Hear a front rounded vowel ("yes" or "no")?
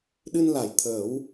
no